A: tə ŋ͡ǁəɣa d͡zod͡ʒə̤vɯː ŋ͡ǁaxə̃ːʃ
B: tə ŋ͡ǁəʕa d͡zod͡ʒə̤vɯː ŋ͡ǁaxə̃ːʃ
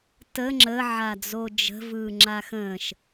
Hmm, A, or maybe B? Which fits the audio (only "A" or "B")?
B